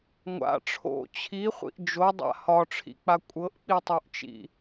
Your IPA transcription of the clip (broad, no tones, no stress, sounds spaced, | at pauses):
ŋʷ a̰ ʈ͡ʂʰ o̰ t͡ɕʰ i χʷ ḭ ʔ d͡ʒ o dˤ a̰ h ɒ ʈ͡ʂʰ ḭ k͡p a kʷʼ ɤ ʔ k͡p i tˤ o ʔ t͡ʃ ḭ